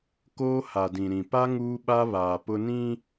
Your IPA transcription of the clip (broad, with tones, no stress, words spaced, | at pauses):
koː˦ha˨dĩ˨ɾĩ˨ pa˦ ŋuː˦ɓa˦ βaː˨pʊ˦ nĩ˦